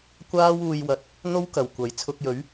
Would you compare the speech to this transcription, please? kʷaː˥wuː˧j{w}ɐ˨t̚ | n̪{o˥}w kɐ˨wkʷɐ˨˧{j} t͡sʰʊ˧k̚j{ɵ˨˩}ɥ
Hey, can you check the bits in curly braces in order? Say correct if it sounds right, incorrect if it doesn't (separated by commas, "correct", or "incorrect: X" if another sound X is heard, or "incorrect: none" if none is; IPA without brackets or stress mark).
correct, correct, correct, incorrect: ɵ˨˥